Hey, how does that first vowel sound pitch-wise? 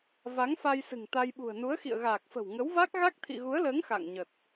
rising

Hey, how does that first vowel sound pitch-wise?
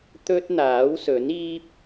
high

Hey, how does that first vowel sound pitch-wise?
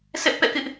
high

